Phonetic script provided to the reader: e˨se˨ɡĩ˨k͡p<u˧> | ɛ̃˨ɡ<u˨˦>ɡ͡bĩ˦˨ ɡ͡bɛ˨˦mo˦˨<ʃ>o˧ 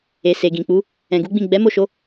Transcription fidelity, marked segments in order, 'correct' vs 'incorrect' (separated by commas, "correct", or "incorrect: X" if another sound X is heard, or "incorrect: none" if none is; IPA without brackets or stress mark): incorrect: u˨˦, correct, correct